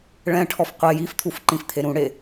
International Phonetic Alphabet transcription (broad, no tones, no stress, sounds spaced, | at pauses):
ɭ ɛ̃ ʈʰ ɔ f qʷ e j i f t̪ʰ u f ǃ ĩ f t̪ʰ e ɾ ũ ɽ e